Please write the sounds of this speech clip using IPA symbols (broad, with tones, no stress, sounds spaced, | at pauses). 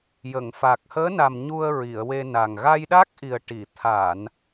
j ə˨˩˨ ŋ f a˨˩ k̚ h əː˧˥ n a˨˩ m ɲ u˧ ə̯ ɹ i˨˩˨ ə̯ w e˧ n a˨˩ ŋ ɣ a˧ j ɗ a˦˥ k̚ ʔ i˨˩ ə̯ ʈ i˨˩˨ t̪ʰ a˨˩˨ n